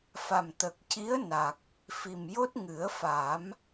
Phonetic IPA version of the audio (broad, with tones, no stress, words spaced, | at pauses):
fa˨˩mt̪ə˨˩k̚ci˧˥ə̯na˨˩k̚ | fi˨˩mjo˦˥t̚ ŋɨ˨˩˦ə̯fa˨˩˦m